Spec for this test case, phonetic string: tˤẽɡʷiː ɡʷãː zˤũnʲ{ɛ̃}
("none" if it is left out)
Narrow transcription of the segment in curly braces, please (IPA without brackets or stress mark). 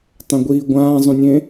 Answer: ẽ